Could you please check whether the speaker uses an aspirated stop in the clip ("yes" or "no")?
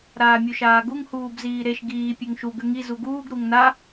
no